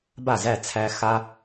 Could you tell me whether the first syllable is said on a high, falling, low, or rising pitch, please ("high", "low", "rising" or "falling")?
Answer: falling